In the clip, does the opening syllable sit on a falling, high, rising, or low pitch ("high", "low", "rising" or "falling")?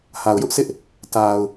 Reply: low